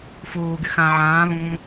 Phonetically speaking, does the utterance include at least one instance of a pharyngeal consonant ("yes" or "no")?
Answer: yes